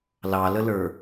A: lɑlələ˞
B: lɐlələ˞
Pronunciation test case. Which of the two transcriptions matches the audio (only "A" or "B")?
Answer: A